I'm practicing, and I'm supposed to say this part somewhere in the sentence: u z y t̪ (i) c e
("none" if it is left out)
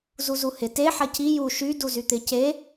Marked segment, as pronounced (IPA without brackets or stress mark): ɪ